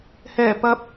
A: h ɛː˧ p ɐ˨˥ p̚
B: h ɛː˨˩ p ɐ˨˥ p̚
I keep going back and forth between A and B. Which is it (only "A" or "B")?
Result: B